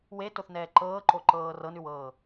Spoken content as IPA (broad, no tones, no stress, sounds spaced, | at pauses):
w e t o θ n ɛː ǃ ɤː ǃ o ǃ ɤː r ɤ n ʉ w ɤː